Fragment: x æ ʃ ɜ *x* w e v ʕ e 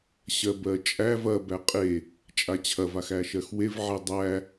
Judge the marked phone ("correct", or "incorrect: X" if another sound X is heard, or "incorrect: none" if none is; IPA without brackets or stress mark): correct